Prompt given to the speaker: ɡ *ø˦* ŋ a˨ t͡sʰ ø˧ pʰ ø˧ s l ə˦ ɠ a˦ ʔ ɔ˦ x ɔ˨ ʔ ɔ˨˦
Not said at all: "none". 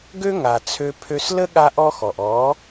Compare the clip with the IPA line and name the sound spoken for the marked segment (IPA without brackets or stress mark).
ø˦